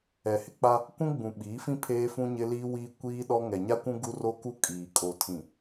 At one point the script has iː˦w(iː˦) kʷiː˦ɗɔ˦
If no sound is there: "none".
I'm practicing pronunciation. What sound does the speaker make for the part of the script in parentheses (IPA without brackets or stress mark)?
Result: iː˦